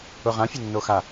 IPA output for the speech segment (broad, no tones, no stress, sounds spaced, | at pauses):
ʊ ʁ ã fʲ ʊ nː o x a